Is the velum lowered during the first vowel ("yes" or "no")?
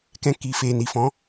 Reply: yes